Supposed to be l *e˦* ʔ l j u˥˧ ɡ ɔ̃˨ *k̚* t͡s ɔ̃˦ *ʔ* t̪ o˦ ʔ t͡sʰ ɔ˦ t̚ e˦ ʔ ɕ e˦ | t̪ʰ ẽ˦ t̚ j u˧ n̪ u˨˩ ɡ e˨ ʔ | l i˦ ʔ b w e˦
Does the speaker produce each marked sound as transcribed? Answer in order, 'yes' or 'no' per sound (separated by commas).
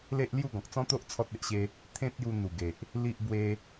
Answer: yes, yes, no